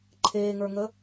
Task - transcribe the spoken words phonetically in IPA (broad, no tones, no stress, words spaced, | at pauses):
ǃʰeːŋə˞ŋə